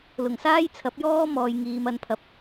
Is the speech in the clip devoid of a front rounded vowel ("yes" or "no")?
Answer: yes